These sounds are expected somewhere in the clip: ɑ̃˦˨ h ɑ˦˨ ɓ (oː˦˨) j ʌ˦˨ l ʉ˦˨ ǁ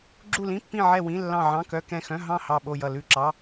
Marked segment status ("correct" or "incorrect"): incorrect